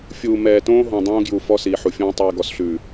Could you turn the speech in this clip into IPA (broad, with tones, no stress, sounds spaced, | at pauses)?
fʲ uː˨ m ɛː˨ t õː˦ ɦ õ˨ dˤ õː˦ ɡ j u˨ f ɔ˦ s iː˨ ħ u˨ fʲ õː˦ tˤ iː˨ ɡ ɔ˨ s ɬ ʉː˨